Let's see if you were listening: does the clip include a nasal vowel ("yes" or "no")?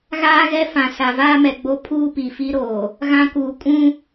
yes